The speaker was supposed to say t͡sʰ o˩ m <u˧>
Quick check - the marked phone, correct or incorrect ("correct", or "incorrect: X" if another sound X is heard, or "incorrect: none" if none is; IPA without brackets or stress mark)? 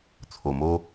incorrect: o˧